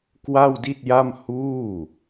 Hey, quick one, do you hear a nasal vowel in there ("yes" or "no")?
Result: no